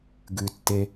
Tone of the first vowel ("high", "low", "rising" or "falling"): low